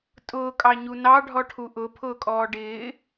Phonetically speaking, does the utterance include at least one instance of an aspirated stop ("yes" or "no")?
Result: yes